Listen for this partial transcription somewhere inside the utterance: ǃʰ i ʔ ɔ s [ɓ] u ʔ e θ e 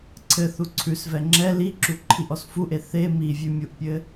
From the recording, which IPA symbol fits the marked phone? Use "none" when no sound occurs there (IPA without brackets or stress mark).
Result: f